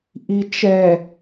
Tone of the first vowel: low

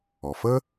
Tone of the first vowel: low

